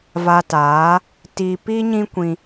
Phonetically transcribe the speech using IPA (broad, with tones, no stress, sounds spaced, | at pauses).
v a˨ t aː˨˦ | t i˨ p i˦ ɲ ĩ˦ kʷ ĩ˧